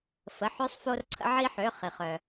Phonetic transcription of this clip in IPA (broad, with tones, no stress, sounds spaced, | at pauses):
f ə˩˧˩ ħ ø˧ sˤ f o˧ r ǀʰ ə̰˧ ʕ i˧ ħ ø˩˧˩ χ i˩ χ œ˩